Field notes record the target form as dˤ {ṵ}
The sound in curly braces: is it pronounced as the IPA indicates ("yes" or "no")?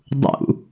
yes